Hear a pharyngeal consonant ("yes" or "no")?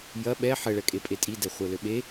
yes